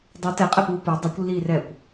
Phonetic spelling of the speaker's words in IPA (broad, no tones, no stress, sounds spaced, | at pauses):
dˤ u t ɛ qʼ ɛ p uː p u dˤ i kʷ lː iː r ɛː kʷ